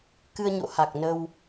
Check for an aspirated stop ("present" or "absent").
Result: absent